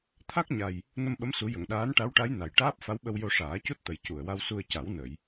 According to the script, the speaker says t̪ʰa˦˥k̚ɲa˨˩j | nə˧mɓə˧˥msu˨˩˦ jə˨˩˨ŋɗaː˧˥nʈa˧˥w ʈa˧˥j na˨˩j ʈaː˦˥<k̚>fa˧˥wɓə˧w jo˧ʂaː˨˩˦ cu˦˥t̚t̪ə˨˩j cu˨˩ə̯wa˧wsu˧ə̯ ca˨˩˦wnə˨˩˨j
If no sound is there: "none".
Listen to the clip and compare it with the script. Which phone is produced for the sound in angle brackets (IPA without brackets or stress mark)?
p̚